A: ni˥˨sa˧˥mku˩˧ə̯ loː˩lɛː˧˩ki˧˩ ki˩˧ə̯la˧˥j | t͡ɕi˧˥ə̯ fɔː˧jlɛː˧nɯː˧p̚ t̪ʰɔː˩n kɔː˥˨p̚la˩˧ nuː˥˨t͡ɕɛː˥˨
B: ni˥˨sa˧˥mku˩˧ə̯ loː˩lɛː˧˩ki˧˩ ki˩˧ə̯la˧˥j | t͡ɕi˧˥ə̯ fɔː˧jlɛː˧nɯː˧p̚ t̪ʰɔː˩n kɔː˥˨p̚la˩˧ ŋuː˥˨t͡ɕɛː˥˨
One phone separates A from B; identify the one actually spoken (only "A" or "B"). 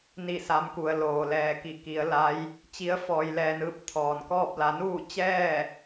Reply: A